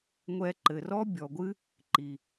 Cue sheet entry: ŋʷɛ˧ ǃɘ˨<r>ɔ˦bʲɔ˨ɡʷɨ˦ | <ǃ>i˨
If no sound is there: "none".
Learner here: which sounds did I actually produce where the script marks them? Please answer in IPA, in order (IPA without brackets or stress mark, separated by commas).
r, ǃ